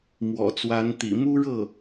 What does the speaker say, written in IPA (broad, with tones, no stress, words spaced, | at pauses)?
mwɔ̰˨˩t͡swa˧˥n t̪ḭ˨˩mu˥ɻɤ˥˩